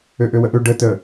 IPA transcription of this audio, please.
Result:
ø ʔ ø w ə ʔ ø ɖ ə t ə

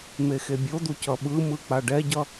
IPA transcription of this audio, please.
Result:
m e x e bʲ o d̪ u c ʌ ɓ ɯ m ɯ k͡p a ɖ ɛ ɟ ʌ

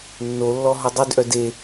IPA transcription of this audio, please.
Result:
nː o lː ɔ ɦ ɔ dˤ y d ʔ œ d e

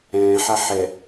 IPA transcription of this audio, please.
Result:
ɛ̃ː ħ a ħ ɛ

